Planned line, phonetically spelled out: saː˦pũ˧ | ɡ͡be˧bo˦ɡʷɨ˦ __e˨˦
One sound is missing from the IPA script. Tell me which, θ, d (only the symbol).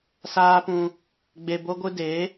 d